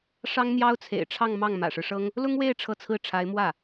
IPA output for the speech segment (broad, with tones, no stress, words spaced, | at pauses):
ʂɑ˥ŋn̪jɑ˥ʊ̯t͡sʰḛ˨˩ɪ̯ʈ͡ʂʰɑ˥˧ŋ mɑ˥˩ŋmä̰˨˩ʂɻ̩˦ʂɤ˥ŋ | lʊ˥ŋwe˥˧ɪ̯ ʈ͡ʂʰɤ˥˧t͡sʰɹ̩˥˩ʈ͡ʂʰa˧˥ɪ̯ mwä˥˩